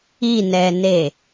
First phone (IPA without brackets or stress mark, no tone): i